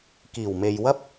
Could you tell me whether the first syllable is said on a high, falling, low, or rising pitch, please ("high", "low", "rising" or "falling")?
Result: low